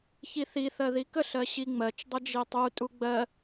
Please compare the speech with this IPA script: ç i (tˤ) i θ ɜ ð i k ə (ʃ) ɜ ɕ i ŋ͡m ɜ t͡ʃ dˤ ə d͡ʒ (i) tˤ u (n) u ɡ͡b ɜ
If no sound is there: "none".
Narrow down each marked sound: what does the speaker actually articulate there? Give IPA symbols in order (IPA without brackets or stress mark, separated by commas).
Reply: θ, ɬ, i, tʼ